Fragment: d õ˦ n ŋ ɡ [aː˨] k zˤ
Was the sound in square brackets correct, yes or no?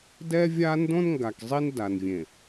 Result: no